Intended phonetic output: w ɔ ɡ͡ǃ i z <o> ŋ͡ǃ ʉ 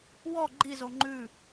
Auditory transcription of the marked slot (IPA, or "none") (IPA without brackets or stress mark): o